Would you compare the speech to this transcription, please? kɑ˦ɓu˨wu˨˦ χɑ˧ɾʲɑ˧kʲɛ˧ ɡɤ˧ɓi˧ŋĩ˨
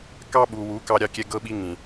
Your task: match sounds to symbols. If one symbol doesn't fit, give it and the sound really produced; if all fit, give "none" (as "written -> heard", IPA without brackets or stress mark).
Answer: χ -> k